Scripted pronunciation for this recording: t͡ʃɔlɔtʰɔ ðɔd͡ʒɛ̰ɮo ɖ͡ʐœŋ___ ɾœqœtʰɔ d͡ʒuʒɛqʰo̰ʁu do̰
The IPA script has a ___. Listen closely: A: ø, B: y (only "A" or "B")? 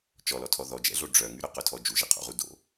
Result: B